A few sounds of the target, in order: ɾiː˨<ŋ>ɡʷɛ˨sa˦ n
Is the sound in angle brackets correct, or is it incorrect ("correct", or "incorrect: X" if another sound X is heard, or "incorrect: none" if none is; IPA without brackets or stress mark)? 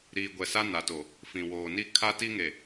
incorrect: none